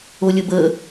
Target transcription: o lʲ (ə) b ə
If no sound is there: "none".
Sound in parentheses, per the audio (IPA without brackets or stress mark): ə